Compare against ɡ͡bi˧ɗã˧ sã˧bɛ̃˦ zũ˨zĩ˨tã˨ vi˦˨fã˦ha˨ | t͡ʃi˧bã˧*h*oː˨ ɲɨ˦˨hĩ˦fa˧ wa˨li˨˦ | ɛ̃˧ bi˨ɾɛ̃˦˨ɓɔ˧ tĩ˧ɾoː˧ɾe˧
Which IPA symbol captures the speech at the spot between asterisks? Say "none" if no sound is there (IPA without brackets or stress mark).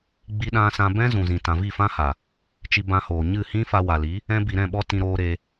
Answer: h